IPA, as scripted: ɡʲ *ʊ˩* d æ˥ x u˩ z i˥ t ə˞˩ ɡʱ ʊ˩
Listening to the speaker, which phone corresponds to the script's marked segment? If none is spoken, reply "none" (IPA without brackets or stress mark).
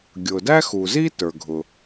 ʊ˩